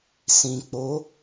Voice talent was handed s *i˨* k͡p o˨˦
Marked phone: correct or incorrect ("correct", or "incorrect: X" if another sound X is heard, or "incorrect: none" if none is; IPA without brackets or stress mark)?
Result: incorrect: ĩ˨